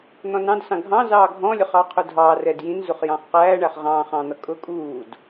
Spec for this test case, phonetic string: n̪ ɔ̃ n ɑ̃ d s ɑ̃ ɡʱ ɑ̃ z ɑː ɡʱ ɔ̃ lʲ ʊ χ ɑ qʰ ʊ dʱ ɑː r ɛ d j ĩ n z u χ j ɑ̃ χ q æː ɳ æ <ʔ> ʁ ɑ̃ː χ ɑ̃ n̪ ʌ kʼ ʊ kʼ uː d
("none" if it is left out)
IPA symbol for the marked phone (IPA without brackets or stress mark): χ